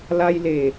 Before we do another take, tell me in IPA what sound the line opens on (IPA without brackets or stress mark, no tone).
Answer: l